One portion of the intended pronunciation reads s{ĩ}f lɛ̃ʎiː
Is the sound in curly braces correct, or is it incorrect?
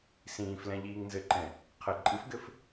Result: incorrect